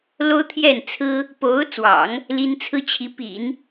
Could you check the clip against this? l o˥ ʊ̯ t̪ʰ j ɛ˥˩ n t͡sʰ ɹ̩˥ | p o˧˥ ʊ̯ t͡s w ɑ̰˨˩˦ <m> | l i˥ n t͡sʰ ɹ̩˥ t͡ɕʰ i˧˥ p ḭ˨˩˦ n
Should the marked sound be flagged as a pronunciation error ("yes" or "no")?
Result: yes